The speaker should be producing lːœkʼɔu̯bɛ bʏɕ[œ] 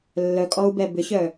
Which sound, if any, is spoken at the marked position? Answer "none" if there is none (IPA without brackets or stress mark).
œ